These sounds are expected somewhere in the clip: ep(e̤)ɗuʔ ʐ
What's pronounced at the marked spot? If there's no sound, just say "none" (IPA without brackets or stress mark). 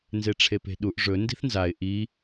e̤